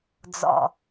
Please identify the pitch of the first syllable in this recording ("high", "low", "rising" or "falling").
low